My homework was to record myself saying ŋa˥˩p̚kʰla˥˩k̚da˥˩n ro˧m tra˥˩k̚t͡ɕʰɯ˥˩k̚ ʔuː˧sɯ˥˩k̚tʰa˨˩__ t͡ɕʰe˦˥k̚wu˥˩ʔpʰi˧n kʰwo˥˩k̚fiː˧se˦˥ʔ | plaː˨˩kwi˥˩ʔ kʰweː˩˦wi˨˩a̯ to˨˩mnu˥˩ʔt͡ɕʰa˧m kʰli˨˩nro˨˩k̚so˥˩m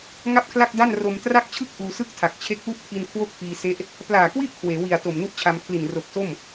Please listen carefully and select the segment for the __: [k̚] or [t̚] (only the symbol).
k̚